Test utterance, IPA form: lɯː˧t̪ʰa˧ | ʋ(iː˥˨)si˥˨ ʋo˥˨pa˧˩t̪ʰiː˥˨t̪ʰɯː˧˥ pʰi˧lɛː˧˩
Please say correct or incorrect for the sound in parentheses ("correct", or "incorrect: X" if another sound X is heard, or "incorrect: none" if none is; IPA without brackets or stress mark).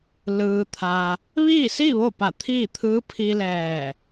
correct